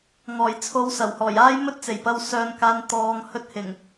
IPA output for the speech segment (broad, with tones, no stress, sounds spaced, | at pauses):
ŋ ɔː˨˩ j t͡sʰ o˨˧ w s ɐ˨˩ w h ɔː˨˩ j aː˥ j m ɵ˥ t̚ t͡s e˨˩ j p ɐ˧ w s œː˧ n k aː˧ n t̪ ɔː˨ ŋ h ɵ˧ t̚ h ɪ˨˩ ŋ